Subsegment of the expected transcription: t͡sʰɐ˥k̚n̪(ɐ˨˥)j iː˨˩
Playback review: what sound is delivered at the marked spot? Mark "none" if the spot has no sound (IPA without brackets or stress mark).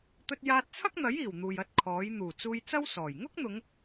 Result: ɐ˨˥